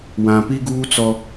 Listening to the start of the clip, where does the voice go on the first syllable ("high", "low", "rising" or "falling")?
low